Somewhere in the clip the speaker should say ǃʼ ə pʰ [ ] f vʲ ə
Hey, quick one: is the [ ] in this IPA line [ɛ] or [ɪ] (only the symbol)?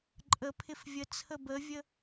ɪ